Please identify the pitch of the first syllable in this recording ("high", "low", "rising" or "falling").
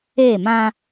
falling